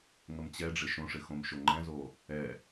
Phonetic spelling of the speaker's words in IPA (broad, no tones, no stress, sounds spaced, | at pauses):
ŋ ə m t͡ɕ ɛ ɖ͡ʐ ɪ ʃ õ ʂ ɪ x õ m ʃ o ŋ͡ǃ ɛ̃ z o | ɛ